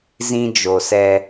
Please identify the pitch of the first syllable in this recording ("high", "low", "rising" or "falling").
high